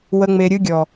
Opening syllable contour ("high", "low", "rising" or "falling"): low